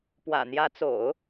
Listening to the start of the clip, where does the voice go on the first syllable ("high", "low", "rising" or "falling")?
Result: low